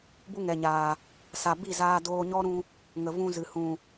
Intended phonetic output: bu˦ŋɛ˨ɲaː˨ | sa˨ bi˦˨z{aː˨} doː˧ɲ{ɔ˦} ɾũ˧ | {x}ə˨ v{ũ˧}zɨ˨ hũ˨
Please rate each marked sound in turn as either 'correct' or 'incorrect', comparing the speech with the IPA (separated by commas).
incorrect, correct, incorrect, correct